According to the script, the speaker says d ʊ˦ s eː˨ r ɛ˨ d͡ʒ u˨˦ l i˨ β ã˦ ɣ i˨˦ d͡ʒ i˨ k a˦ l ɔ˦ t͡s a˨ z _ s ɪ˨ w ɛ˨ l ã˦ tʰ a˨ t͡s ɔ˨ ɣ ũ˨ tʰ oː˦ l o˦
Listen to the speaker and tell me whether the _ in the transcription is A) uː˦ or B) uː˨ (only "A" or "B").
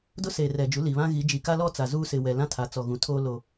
A